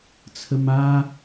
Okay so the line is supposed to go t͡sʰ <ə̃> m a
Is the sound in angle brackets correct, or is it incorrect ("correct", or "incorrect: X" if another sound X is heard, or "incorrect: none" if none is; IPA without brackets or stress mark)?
incorrect: ə